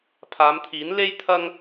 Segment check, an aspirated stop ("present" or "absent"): present